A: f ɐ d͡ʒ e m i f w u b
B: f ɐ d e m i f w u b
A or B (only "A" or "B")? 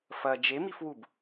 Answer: A